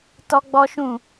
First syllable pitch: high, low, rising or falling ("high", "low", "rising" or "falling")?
high